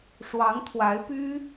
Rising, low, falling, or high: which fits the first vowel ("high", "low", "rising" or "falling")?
rising